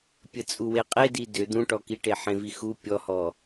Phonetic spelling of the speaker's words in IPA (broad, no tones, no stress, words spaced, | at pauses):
pʲət͡sʼuweqʼe didʏ d̪ũʈɔkiʈe ħẽvixu pʲɔhɔ